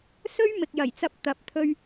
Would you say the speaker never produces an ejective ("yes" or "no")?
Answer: yes